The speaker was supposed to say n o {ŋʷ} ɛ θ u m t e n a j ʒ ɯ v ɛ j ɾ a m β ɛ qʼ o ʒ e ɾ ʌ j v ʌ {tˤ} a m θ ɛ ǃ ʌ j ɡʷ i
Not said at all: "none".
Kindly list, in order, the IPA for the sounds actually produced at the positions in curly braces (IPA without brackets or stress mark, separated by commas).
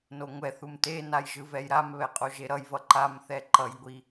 ŋʷ, ǃ